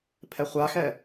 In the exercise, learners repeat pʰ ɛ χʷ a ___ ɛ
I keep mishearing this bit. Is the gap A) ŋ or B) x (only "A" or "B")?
B